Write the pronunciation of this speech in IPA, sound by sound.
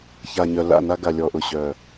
ç a˨ ɲ œ˨ l a̰˦˨ n a˧ ɡ a˨ lʲ ɔ˨ ʔ ʊ˨ ɕ œ˨

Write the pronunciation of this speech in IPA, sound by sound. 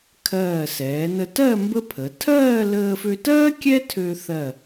kʰ ɜː˧˩ s ɛː˩˧ n ə˧ t ɜ˥˧ m b ə˥ pʰ ə˩˧ tʰ ɜː˥˧ l əː˧ f ø˧ t ɜː˥ kʲ ɛ˥ tʰ ø˧ θ ɜ˧˩

